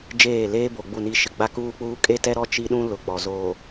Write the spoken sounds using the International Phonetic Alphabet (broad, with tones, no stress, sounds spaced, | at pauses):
d͡ʒ eː˦˨ l eː˦ b o˨ ɡ͡b u˦˨ n i˦ ʃ ɪ˨ ɡ͡b a˦ k uː˦ k͡p uː˦ kʼ e˦ t ɛ˦ ɾ ɔ˦ t͡ʃ i˦ ɗ ũ˦ l ʊ˨ k͡p ɔ˨ z oː˨